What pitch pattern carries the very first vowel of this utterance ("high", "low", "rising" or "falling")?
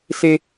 high